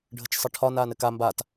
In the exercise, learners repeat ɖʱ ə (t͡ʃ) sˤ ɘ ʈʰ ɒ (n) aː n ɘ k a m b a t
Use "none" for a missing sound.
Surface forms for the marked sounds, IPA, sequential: t͡ʃ, n

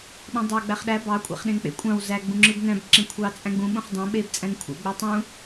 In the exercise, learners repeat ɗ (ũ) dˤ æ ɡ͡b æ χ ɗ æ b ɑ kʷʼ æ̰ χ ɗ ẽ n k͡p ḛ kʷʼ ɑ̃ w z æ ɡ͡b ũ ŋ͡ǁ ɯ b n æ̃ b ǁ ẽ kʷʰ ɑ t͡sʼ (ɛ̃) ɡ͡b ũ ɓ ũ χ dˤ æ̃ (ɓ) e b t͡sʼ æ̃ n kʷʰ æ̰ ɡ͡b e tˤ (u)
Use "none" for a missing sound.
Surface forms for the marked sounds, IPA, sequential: ũ, æ̃, ɓ, ũ

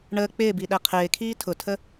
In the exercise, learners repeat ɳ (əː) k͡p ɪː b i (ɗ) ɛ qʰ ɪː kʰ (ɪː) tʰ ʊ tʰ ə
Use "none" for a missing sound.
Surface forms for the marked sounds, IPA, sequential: əː, ɗ, iː

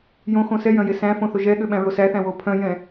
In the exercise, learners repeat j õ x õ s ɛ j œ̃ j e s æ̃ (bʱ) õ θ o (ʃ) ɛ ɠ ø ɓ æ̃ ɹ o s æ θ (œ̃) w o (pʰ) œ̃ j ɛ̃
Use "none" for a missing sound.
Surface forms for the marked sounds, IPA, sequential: f, ʒ, æ̃, pʰ

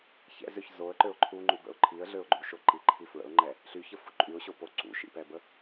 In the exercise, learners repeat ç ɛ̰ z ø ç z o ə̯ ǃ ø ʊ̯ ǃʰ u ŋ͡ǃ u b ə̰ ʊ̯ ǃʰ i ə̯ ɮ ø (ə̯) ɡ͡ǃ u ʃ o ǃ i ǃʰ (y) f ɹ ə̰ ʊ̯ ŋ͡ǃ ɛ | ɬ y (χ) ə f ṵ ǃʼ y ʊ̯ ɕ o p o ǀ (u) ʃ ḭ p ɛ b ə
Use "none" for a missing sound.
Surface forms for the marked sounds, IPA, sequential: ʊ̯, i, ç, ṵ

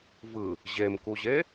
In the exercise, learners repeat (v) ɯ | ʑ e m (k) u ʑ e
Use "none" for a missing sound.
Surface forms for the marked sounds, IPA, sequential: v, k

